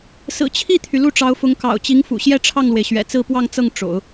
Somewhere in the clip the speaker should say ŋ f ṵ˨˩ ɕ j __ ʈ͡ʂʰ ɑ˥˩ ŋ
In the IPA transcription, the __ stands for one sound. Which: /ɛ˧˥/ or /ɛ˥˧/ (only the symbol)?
ɛ˥˧